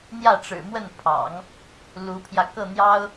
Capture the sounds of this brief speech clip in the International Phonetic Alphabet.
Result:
n̪ j ä˥˩ ʈ͡ʂ ɻ̩˨˩ m w ə˥˩ n pʰ ɑ̰˨˩˦ ŋ | l u˧˥ pʰ j ä˧ k ɤ˥˩ n̪ j ɑ˥ ʊ̯

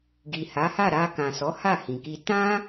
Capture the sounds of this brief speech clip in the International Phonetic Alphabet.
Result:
ɡ i˨ h a˨˦ h a˦˨ ɾ a˧ k ã˨ s ɔ˨˦ h a˦˨ h ĩ˨ k i˧ t ã˦

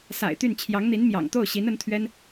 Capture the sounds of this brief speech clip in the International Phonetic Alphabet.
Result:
s a̰˨˩ ɪ̯ t̪ y˥˩ n t͡ɕʰ j ɑ˧˥ ŋ n̪ i˧˥ n m j ɑ̰˨˩ ŋ t̪ o˥˩ ʊ̯ ɕ i˧˥ n ə˧˥ n t̪ʰ ɥ ɛ˥ n

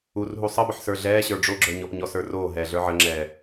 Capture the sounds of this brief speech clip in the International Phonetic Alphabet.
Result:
u r ɦ u sˤ ə b ə ħ s ə˞ ɮ ɛː ɕ ə˞ ɖ͡ʐ o ɡ͡ǁ ə˞ ɲ ɔ p ɲ ɔ s ə˞ r oː ɦ ɛː ɮ ə˞ ʕ ə ŋ͡ǁ ɛː

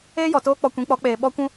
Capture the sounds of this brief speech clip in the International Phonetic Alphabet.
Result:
eː˦ j ɔ˨ t oː˦ k͡p ɔ˧ kʷ ĩ˨˦ k͡p ɔ˨˦ k͡p eː˨ ɓ ɔ˦ kʷ ũ˦

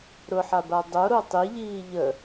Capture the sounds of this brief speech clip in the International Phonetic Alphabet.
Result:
ɾ ʊ ħ a b a dˤ o ɾ o tˤ i ʎ iː ʎ ə

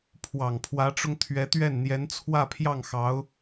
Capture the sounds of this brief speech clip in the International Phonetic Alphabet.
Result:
pʰ w ɑ˨˩ ŋ pʰ w ä˧˥ ʈ͡ʂ ʊ˧ ŋ t̪ʰ ɥ ɛ˧˥ t̪ ɥ ɛ˥˩ n n̪ j ɛ˧˥ n t͡sʰ w ä˥˧ pʰ j ɑ˥˩ ŋ x ɑ˧˥ ʊ̯

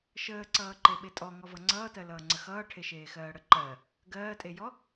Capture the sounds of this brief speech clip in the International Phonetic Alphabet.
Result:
ʃ əː ǀ ʌː ǃ e ɓ e tʼ ɔ ŋ ɔ v ʌ ŋ͡ǀ ʌː t ɜ l ʌː ŋ͡ǀ ə x ʌː ʈʰ e ʃ eː x ɜː ɽ ə ǃ ɜ | ɡ ɜː tʼ e j ɔ

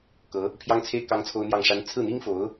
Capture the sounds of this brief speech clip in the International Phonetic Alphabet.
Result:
k ɤ˧˥ | pʰ j ɑ˥ ŋ t͡sʰ e˥ ɪ̯ k ɑ˥ ŋ t͡sʰ o˥ ʊ̯ n̪ j ɑ˥˩ ŋ ʂ a˥ n t͡sʰ ɹ̩˥˩ n̪ i˥ ŋ f o˧˥ ʊ̯

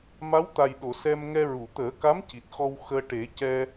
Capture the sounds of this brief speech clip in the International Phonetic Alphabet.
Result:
m a˧˥ w t̪ a˨˩ j ɗ o˨˩˨ s ɛ˧ m ŋ ɛ˧ ɹ u˨˩˨ t̪ əː˨˩˦ k a˧˥ m c i˨˩ t̚ x ɔ˧ w x əː˧ ʈ e˨˩˦ c ɛ˧

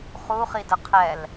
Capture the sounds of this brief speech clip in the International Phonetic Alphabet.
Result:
χ u χ i d ə qʰ ɛ l

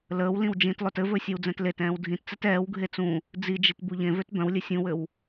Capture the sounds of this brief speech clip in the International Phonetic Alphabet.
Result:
l əː w l ĩ w d͡ʒ ĩ t lˠ ø t ɘ v ɵ sʲ ɛ w d͡z ɛ̃ t l e t ɛ̃ː w dʱ ĩ t t͡s ɛ t ɛː w ɡʱ e t͡s ũ | d͡z i d͡ʒ i t b u ʎ ẽ v ø t b œ̃ w lʲ ɘ sʲ ũ w ɘ w

